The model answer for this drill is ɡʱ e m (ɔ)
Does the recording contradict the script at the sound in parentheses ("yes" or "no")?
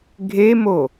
yes